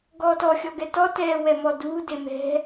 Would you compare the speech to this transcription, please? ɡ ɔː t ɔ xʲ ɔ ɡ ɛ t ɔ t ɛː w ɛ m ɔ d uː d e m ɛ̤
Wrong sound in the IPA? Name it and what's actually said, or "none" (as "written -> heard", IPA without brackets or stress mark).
none